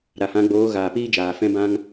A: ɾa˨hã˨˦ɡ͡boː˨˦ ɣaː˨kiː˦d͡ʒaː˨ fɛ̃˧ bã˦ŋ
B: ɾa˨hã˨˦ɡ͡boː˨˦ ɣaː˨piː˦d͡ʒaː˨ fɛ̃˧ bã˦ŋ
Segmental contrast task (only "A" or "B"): B